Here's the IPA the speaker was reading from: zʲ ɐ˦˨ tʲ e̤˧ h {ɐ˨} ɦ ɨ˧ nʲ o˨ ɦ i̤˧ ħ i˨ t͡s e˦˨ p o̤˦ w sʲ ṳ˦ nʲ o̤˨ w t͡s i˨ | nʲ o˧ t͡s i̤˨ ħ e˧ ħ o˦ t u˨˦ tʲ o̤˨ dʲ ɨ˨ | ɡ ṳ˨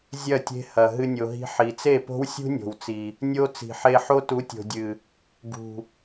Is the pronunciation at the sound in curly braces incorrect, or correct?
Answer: correct